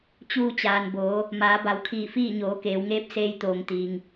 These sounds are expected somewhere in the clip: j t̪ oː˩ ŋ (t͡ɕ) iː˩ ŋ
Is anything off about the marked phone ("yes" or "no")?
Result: yes